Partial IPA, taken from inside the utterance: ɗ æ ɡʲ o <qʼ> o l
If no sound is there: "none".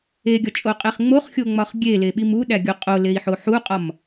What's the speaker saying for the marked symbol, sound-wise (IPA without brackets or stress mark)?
qʼ